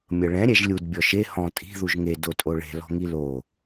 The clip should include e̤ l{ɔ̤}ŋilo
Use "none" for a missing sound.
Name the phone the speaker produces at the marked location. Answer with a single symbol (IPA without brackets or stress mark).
ɔ̤